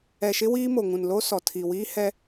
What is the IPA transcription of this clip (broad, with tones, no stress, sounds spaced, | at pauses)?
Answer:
ɛ˨ ʃ ɪ˦ w iː˦ m o˨ ŋ ũ˨ n l o˦ s ɔ˨ tʰ i˨ w iː˦ h ɛ˦